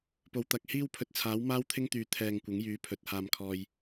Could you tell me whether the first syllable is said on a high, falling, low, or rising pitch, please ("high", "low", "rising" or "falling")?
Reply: low